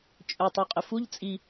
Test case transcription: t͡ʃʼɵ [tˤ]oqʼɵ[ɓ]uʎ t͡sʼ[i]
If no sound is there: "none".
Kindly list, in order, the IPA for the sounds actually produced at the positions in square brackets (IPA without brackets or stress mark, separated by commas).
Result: tˤ, f, i